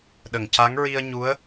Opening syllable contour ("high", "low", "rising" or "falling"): low